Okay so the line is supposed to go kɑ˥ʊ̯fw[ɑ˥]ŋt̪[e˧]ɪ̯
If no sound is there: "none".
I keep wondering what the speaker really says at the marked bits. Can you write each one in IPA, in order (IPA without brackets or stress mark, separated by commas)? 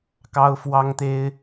ɑ˥, e˥